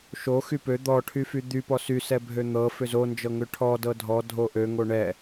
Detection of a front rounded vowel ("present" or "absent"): present